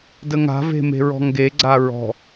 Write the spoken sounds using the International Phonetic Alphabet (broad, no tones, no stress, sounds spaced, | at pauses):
d ə ŋ a̤ v e̤ m e̤ ɹ ɔ̤ ŋ ɡ e ɡ͡ǀ a ɹ ɔ̤